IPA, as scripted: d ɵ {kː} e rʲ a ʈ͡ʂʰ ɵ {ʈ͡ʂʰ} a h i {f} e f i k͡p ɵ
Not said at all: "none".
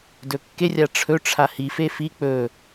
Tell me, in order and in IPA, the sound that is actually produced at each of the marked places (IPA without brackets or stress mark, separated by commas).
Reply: kː, ʈ͡ʂʰ, f